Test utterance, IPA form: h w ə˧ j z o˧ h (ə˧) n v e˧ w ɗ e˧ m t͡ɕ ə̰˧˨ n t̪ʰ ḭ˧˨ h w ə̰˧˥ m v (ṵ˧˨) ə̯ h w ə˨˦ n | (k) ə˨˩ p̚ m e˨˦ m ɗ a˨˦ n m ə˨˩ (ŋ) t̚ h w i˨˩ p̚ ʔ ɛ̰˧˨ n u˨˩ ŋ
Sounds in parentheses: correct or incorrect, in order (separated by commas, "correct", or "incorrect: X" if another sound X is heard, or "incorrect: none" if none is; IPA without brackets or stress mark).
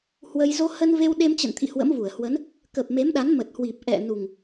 correct, incorrect: u˧˩, correct, incorrect: none